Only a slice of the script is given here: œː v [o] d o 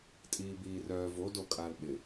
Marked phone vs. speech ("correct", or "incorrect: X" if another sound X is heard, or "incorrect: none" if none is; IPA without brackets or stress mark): correct